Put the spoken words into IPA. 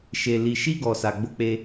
ʃ e˨ l i˨ ʃ i˧ ɡ ɔ˨ s a˨ ɡ͡b o˧ k͡p e˧

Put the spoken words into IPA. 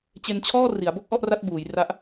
t͡ɕ e˧ n t͡ɕʰ ɔː˥˩ r i˩˦ a̯ b o˥˩ k̚ ʔ ɔ˥˩ ʔ r a˦˥ t̚ b uː˩˦ j r a˦˥ ʔ

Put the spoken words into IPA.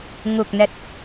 ŋ u˨˩ k̚ n ɛ˨˩ t̚

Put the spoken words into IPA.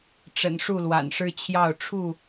ʈ͡ʂ ə̰˨˩ n ʂ u˥˨ l w a̰˨˩ n ʂ ɻ̩˦ t͡ɕʰ j ɑ˥˨ ʊ̯ ʈ͡ʂʰ u˥˨

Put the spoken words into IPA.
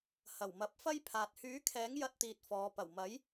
h ɐ˨˩ w m ɐ˨˥ p̚ f ɐ˥ j pʰ aː˨ t̚ h yː˨˥ kʰ ɛː˨˥ ŋ j ɐ˧ t̚ t̪ iː˧ t̚ f ɔː˨˧ p ɐ˨˩ w m ɐ˨˥ j

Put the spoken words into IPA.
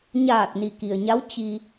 ɲ aː˧˩ t̚ n i˩ k i˩ ə̯ ɲ a˧˥ w t͡ɕ i˧

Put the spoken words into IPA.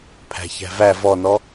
pʰ æ̤ ç æ̤ v æ v ɔ n ɔ

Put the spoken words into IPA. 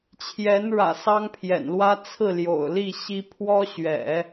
t͡ɕʰ j ɛ˧˥ n ɻ ä̰˨˩ s ɑ˥ ŋ pʰ j ɛ̰˨˩ n l w ä˥ t͡sʰ ɹ̩˥˩ l j o̰˨˩ ʊ̯ l i˥˩ ɕ i˥ pʰ w ɔ˥ ɕ ɥ ɛ̰˨˩˦

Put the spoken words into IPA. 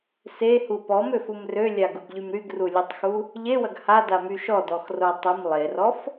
s e h u p ɔ m ø f u m r ø lʲ a ɡ u ɡ ʎ y m ɾ y ɡ r u lʲ u tˤ x u | ʎ e w ɐ ɡ h a d a m y ʃ ɔ d ɔ x r o tˤ ɐ m lˠ e r ɔ f

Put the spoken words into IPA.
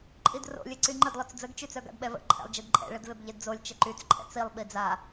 ǃʼ i d r o̰ lʲ e ǀ y ŋ͡ǃ ə d lˠ œ t͡s d͡z ə ɡ t͡ʃ y t͡s œ ɡ a̰ d ɓ ɛ v ə̰ ǃʰ ɛ̰ lˠ d͡ʒ e d ǃʼ ɛ̰ ɭ ə d v e b ʎ e d d͡z o lʲ t͡ʃ ə ǃ y t͡s ǃʼ ɛ̰ t͡s i lˠ ɓ i d͡z a

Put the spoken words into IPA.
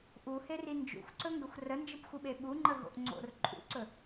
ʔ u h e r i n d͡ʒ ṵ xʷ ǀ ɵ ŋ ɡ ə xʷ r ə n d͡ʒ ɯ p xʷ ɯ ɓ e ɓ u ŋ͡ǃ ə ɦ o̰ ʔ ŋ͡ǀ o̰ r ǃʼ ṵ ǀ ɵ

